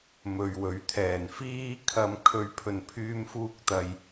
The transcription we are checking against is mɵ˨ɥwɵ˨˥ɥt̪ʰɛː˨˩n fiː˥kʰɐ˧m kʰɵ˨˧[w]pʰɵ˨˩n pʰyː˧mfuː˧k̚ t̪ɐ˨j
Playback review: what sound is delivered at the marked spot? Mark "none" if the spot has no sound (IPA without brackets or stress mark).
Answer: ɥ